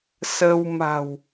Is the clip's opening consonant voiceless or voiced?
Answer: voiceless